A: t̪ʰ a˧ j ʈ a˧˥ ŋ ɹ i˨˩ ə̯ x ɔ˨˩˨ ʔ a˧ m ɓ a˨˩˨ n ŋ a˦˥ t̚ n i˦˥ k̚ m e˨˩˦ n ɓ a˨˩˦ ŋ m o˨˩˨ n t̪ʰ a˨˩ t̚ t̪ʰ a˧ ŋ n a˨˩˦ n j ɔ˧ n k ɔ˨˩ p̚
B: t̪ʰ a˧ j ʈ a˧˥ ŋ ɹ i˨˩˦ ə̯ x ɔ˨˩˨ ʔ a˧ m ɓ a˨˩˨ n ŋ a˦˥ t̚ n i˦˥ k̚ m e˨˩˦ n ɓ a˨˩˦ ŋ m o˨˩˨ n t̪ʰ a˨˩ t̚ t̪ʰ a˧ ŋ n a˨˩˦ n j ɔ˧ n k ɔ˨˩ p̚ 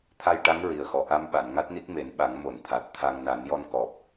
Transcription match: A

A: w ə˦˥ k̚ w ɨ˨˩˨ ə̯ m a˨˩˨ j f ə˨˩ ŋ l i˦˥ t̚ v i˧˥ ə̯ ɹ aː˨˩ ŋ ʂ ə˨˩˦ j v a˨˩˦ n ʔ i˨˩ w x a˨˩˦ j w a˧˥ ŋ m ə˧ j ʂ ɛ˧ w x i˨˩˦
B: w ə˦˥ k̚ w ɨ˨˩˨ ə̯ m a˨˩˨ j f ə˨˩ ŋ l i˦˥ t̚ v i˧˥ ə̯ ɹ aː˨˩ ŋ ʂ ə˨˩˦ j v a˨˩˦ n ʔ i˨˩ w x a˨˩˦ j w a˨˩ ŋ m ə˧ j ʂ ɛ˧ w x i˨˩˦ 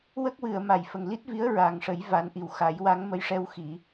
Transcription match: A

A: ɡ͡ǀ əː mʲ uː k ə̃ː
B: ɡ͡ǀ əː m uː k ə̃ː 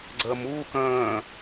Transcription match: B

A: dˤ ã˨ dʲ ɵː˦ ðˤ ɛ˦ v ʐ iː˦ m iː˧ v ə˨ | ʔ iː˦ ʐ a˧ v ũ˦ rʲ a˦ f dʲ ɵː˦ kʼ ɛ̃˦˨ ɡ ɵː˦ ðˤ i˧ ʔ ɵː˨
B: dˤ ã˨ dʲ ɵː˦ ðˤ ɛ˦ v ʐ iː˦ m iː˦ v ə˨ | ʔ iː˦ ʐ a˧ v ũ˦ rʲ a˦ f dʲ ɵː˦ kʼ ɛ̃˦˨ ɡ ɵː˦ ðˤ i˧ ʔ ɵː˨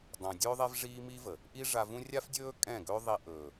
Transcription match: B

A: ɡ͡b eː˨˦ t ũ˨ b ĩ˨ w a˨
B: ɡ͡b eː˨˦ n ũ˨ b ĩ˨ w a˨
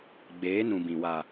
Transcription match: B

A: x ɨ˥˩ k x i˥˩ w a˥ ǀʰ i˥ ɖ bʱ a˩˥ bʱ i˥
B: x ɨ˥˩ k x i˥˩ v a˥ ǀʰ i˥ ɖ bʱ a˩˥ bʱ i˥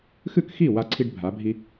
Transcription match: A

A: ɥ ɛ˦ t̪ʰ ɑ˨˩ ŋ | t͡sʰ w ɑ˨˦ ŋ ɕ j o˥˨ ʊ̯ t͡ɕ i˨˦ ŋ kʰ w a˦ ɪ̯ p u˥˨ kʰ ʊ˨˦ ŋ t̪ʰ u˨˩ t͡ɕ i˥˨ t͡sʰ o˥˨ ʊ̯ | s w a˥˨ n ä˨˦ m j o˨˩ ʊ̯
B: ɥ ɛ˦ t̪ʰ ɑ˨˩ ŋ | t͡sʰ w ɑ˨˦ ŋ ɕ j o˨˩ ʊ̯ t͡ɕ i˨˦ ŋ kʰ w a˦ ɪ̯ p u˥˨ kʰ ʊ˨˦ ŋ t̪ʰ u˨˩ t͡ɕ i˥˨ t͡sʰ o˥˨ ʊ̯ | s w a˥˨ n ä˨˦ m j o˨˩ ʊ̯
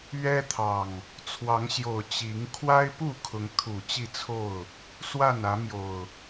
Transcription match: B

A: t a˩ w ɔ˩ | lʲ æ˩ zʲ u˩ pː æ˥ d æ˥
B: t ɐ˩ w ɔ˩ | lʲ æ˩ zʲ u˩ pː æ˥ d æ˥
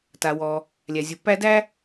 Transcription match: A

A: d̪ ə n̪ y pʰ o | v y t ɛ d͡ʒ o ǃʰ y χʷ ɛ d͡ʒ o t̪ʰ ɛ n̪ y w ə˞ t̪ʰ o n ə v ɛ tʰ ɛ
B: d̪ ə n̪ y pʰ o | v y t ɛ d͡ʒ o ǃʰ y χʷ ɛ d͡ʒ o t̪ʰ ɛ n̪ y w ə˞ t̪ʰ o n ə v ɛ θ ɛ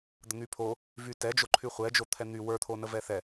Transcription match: B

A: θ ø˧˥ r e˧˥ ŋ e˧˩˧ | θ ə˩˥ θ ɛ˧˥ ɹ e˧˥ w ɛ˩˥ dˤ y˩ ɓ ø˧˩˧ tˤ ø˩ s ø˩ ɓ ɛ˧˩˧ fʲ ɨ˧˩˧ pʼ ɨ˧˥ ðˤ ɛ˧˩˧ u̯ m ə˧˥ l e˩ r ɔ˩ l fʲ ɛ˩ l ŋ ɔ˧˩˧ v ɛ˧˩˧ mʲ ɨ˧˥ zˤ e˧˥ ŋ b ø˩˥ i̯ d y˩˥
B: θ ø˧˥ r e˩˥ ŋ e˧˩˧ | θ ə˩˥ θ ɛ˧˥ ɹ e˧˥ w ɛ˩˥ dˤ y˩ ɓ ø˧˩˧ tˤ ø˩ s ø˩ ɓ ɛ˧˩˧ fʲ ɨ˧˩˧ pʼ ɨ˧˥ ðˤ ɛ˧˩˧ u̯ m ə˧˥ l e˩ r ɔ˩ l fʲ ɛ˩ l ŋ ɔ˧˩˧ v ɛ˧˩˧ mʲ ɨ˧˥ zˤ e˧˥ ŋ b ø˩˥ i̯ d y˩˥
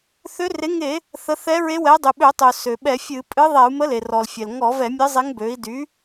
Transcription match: B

